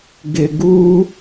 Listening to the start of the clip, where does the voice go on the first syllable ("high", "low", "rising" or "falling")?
low